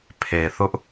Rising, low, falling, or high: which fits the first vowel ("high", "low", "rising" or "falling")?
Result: low